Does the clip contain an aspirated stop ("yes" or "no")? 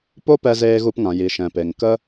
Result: no